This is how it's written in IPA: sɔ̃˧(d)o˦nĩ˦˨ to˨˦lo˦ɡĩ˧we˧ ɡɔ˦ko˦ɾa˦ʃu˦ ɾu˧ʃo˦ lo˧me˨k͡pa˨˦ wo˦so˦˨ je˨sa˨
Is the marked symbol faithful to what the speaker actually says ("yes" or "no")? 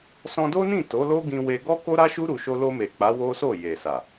yes